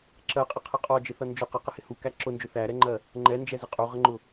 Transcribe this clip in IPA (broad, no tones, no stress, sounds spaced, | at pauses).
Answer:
ǁ ɜ qʼ ɪ qʰ ə qʼ ɔ d͡ʒ ɪ θ ʌ n d͡ʒ ʊ q ə q ɪ h ɪ h u k æ ǁ ʊ n d͡ʒ ʊ θ æ ɾ ɛ ŋ͡ǃ ɜ | ŋ͡ǃ ɛ n d͡ʒ ɛ z ɪ qʼ u ʁ ə ŋ͡ǃ ʊ